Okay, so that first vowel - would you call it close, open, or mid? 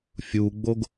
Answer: close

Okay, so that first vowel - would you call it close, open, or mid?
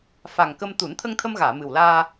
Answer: open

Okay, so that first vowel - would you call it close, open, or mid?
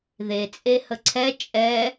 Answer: mid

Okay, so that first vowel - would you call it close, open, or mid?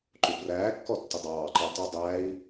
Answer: close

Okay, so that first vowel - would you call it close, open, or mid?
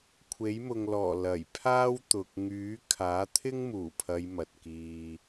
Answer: mid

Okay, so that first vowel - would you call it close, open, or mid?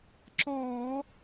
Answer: mid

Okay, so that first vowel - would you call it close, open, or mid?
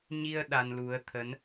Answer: close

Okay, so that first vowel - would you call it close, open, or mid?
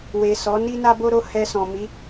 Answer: mid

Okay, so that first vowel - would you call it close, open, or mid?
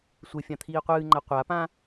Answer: mid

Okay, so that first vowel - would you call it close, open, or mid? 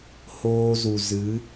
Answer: mid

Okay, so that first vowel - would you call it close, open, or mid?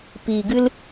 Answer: close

